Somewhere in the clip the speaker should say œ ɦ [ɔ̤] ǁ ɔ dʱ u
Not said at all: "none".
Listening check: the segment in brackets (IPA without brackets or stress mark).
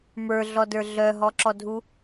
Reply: ɔ